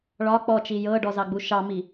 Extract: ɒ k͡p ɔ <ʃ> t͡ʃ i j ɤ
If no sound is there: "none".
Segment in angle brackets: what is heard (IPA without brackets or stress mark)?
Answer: none